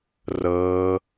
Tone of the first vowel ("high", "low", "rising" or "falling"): high